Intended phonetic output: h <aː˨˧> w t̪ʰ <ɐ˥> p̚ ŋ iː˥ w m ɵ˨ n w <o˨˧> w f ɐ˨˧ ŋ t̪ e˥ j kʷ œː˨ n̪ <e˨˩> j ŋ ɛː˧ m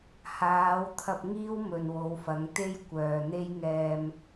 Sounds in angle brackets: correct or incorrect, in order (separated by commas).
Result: correct, incorrect, correct, incorrect